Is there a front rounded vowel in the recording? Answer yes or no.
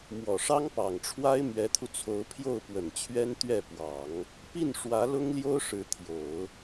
no